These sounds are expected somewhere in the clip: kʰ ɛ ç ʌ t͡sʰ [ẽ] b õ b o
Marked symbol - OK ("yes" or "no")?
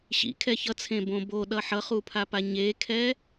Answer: yes